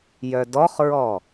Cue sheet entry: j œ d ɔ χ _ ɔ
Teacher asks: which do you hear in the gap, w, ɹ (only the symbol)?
ɹ